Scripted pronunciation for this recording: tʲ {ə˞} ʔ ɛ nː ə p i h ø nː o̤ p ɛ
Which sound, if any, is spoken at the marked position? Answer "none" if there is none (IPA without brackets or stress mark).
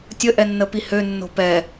ə